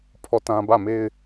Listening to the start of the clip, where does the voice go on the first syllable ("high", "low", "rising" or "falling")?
falling